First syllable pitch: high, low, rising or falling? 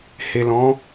low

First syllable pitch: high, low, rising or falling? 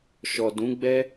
low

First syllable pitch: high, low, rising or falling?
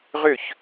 falling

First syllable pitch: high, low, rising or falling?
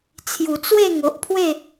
low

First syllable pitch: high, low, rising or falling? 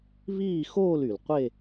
falling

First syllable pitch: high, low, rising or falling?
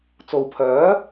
low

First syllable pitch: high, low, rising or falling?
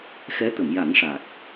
rising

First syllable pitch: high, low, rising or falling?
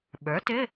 rising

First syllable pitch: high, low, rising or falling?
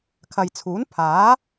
low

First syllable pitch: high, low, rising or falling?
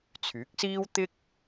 rising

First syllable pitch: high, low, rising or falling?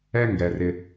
high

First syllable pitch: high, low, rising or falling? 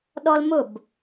high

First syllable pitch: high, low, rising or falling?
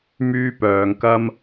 high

